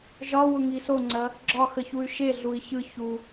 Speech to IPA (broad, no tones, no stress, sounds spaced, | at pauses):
ʒ ɒ w ʊ ŋ i s o ŋ͡ǀ ɐ | ɡ͡ǁ ɒ x ə ç u y̯ ʃ e ɮ u i̯ ç ɯ ç u